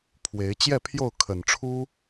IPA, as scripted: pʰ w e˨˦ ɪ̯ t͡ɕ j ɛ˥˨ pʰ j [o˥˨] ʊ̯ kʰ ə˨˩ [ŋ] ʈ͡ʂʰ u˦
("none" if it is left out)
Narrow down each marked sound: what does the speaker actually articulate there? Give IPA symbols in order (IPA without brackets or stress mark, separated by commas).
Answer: o˥˨, n